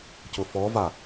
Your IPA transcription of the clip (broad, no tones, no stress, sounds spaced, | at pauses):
c ʊ f ɔ v a